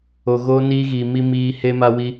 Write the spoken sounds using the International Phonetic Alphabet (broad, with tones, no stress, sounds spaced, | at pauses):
o˨ ɣ oː˧ n iː˧ ɣ iː˨ m i˧ m iː˧ h e˦ m a˦ w i˦